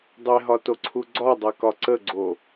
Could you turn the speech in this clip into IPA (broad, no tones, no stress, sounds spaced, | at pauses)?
dˤ e ɦ ɒ t o ǀʰ u ɡ͡ǀ ɒ dˤ ɛ k ɒ ǀ ə ɡ͡ǀ o